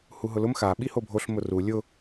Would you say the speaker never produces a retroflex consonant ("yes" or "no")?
yes